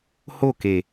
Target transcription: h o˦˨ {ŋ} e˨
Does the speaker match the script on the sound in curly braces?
no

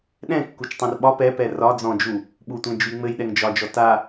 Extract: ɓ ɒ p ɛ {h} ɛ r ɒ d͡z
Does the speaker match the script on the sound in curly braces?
no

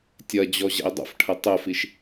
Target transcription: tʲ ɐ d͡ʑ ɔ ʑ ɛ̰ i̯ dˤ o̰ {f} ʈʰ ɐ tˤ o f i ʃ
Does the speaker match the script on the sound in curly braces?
yes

